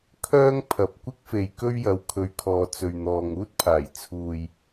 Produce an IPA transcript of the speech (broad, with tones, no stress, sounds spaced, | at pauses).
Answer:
kʰ œː˥ ŋ pʰ ɐ˨ p̚ kʷ ɪ˥ k̚ f e˨ j k ɵ˥ ɥ j ɐ˨˧ w kʰ ɵ˨ ɥ kʰ ɔː˨ t͡s ɵ˨ ɥ n̪ ɔː˨ ŋ uː˥ t̚ pʰ aː˨˩ j t͡sʰ uː˨ j